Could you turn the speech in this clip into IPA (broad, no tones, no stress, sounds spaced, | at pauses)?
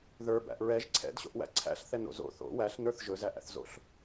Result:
ð ə˞ b æ̰ ʔ ɹ ɛ ʒ ǀʰ ɛ̰ d ɕ o̰ ʔ w æ̰ ǀʰ æ̰ ɬ θ ɛ n o̰ z o̰ θ o̰ w æ ɬ n ə˞ θ ʒ ɵ z æ ʔ æ̰ θ z o̰ ɬ